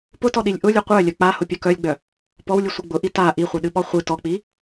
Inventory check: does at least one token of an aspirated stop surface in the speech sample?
no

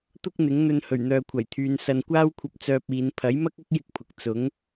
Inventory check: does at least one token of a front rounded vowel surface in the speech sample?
yes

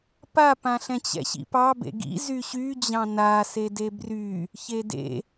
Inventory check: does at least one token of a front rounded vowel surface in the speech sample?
yes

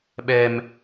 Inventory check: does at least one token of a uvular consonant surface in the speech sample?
no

